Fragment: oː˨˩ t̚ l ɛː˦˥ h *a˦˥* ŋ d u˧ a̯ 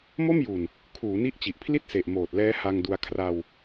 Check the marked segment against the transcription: incorrect: a˧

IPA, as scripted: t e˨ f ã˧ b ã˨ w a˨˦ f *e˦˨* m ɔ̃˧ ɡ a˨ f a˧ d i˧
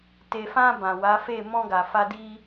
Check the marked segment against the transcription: correct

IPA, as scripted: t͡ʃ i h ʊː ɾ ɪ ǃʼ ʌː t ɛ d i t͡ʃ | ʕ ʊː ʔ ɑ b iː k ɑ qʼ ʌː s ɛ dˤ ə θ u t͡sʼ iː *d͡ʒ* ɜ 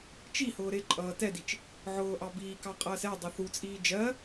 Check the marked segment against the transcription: correct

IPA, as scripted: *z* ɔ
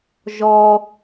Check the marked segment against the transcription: incorrect: ʒ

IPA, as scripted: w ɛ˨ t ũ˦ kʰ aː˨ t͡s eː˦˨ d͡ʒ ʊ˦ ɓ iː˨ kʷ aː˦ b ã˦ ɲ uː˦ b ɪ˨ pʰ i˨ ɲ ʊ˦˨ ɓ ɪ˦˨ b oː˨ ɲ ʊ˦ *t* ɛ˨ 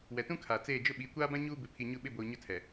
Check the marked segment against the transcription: incorrect: tʰ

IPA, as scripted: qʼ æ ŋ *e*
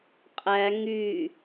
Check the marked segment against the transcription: incorrect: y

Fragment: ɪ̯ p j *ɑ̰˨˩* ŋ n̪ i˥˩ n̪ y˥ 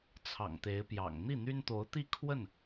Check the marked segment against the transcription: correct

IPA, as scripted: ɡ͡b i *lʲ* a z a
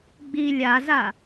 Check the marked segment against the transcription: correct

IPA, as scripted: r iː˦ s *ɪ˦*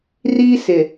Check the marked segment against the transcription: incorrect: ɪ˨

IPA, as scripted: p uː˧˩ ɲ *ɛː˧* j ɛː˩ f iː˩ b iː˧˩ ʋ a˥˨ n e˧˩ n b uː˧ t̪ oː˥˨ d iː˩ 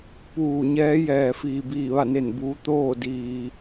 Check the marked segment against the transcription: incorrect: ɛː˧˥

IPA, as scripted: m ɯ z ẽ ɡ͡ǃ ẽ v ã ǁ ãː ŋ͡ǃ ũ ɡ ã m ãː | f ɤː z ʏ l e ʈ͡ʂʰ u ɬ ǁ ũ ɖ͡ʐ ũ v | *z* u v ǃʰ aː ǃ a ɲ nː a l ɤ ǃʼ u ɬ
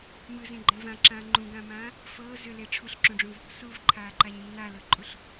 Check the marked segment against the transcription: incorrect: s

